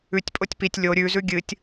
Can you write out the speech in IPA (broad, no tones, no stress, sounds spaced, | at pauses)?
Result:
ʉ tʲ pʼ o tʲ p i tʲ lʲ o ɾʲ ʉ z ʉ ɡʲ ɨ tʲ